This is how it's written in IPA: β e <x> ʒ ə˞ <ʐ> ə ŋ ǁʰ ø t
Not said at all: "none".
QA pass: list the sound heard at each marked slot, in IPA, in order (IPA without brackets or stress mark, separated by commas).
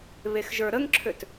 x, ɾ